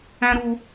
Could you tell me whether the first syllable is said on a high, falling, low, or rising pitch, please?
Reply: high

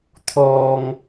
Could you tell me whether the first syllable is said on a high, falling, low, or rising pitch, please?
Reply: low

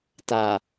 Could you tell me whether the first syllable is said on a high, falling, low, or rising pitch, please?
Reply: low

